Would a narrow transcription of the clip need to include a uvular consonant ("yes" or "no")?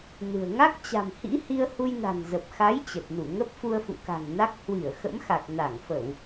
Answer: no